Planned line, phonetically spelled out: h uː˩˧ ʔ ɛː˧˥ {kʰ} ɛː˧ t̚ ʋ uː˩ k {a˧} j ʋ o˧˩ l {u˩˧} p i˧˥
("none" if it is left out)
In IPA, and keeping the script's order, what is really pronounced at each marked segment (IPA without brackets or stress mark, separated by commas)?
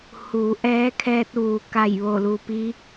kʰ, a˧˩, u˩